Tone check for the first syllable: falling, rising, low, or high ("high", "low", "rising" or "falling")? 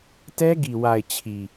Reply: high